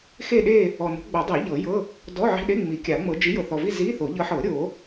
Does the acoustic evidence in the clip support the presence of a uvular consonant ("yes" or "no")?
no